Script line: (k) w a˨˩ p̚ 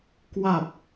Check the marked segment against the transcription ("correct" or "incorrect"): correct